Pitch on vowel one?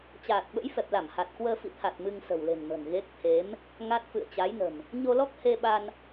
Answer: low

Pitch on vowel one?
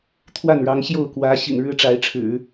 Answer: falling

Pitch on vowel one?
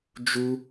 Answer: high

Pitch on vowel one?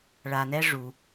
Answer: low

